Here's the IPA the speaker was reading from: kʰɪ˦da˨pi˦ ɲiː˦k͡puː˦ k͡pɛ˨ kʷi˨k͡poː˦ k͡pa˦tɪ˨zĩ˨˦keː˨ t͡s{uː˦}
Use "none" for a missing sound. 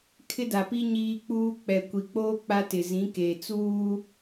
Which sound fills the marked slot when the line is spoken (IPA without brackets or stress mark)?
uː˦